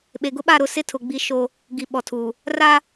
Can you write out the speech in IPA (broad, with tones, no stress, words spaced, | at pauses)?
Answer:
ɓe˨ɡʊ˦ɓa˦˨ɾʊ˦˨ sɪ˦tʰʊ˨ ɡ͡bi˦ʃo˦ | ɡi˨ɓɔ˨tʰuː˨ | ra˦